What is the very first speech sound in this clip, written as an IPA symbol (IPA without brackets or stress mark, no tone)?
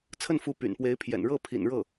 t͡sʰ